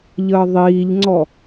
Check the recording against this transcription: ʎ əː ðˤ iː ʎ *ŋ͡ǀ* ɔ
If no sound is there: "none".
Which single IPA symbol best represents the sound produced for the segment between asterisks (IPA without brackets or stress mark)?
ŋ͡ǀ